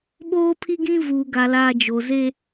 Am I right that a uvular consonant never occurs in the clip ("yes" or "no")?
yes